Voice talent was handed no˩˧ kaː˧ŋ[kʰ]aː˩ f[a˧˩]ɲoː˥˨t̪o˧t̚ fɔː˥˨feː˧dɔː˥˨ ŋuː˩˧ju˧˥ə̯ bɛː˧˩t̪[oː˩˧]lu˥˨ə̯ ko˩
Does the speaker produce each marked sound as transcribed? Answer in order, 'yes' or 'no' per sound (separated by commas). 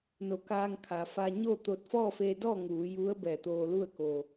yes, no, no